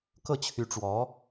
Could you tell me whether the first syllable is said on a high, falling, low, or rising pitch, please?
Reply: falling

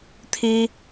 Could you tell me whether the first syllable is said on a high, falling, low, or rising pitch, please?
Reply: high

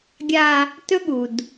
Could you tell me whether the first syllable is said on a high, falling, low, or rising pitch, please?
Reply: high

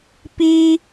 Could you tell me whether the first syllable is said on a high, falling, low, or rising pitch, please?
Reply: high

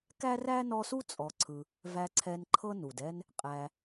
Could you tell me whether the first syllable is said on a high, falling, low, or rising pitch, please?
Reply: high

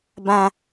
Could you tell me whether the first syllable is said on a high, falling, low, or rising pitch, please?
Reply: high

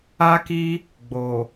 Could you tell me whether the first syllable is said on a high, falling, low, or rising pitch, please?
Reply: high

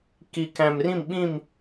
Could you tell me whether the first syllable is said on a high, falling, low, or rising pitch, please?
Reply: low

